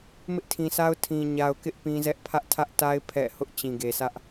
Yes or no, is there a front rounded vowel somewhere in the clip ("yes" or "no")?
no